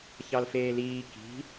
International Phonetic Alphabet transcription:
ç ɑ l f eː l iː k i̤

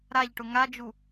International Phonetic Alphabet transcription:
ɾ a ʎ ʈ ʊ ŋ a d͡ʒ u

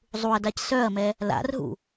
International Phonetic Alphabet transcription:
zˤ u ɐ̯ d a c s œ ɐ̯ m ɛ | l a̰ r ɦ ṵ

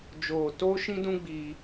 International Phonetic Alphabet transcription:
d͡ʒ oː˧ t o˦ ʃ ĩ˦ d ũ˦ ɡ͡b i˧

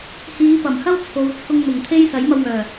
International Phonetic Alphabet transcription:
h iː˨˧ p ɐ˨˩ m h ɐ˥ w t͡sʰ o˨˧ w t͡sʰ ʊ˧ ŋ n̪ ʊ˨˩ ŋ t̪ʰ e˥ j s ɐ˨˥ j m ɐ˧ w ŋ œː˨˩

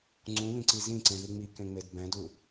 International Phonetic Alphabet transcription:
ŋ͡ǀ ũ β ĩ ǀ i z ĩ ǀ ẽ ð i ŋ͡m i k ẽ ŋ͡m e d b ɛ̃ d u

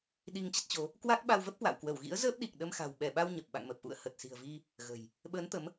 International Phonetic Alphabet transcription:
ɗ i˧ ŋ t͡ɕ ə˦˥ t̚ t͡ɕ o˨˦ | k w aː˦˥ k̚ ɓ a˧ w v ə˦˥ p̚ k w a̰˧˨ w k w ə˧˩ w ɣ ḭ˧˥ ə̯ z əː˦˥ p̚ ɗ i˨˩ k̚ ɗ ə˧ m x a̤˨˩ w ɓ ɛ˧˩ ɓ a˧ w ɲ ə˨˩ p̚ ɓ a̰˧˨ ŋ m ə˨˩ p̚ ʔ ṵ˧˨ ə̯ h ə˨˩ t̚ s i̤˨˩ ə̯ v i˧ | ɣ ə̤˨˩ j | ɓ əː˨˦ n t̪ ə˨˦ m

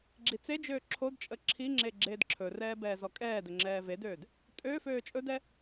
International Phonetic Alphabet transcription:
ɡ͡ǁ i t͡s e d͡ʒ øː ǁʰ o d t͡ʃʼ ə ǁʰ i ŋ͡ǁ e ɡ͡ǁ eː d ǁʰ ɵ r ɛː b ɛː z ɔ kʼ ɛː d ɵ ŋ͡ǁ ɛː v e d øː d | tʼ ø f øː t͡ʃʼ ɵ d ɛ

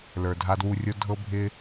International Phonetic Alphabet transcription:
l ə˞˨ dʱ a˧ d w u˧ rʲ o˦ dʱ ɤ˦ bʱ ɪ˦

